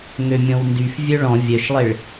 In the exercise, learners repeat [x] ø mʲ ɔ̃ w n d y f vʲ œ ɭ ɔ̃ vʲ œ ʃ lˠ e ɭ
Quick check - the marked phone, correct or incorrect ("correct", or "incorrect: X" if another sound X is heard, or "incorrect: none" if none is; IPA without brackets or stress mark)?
incorrect: ŋ